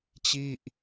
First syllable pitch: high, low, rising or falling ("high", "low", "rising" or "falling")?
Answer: falling